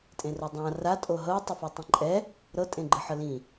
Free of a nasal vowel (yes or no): no